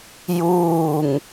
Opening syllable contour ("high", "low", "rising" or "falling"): falling